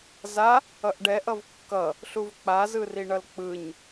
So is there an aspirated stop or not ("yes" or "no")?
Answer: no